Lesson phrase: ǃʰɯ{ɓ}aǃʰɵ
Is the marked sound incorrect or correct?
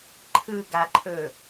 incorrect